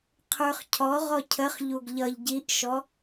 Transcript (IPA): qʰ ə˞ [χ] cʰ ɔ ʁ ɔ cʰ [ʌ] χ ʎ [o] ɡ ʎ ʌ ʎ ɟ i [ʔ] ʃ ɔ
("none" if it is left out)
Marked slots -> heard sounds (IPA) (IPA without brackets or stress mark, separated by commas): χ, ə, u, ʔ